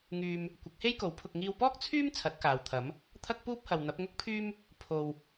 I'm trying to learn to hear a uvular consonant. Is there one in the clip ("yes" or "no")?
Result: no